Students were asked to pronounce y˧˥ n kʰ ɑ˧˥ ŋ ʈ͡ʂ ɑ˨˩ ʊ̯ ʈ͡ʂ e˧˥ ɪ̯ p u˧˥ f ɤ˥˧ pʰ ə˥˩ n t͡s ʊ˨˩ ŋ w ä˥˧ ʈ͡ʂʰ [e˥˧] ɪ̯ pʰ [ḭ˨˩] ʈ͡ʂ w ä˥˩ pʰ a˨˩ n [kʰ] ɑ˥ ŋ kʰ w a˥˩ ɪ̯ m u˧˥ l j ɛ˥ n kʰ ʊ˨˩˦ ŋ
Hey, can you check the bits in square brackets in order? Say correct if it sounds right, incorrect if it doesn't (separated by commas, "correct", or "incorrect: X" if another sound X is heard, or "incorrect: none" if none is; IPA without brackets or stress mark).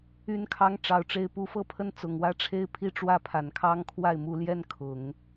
correct, incorrect: i˥˧, correct